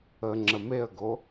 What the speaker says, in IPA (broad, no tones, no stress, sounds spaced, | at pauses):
ə ŋ͡ǁ ə m e ə̯ ɡ o